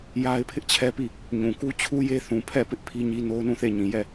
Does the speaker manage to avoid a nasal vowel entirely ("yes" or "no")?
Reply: no